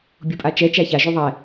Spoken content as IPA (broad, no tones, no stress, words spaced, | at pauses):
bʲupʼat͡ʃɛ t͡ʃæçaʒu ðˤɛ